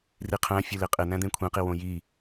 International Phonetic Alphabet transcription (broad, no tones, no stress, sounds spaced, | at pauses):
r i qʰ æ̃ fʲ u l e qʼ e n̪ æ̃ d̪ ẽ kʷʰ ẽ q i w õ j i